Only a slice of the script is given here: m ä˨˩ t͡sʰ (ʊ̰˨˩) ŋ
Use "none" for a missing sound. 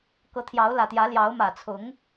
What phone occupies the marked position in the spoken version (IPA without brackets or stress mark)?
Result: ʊ˨˦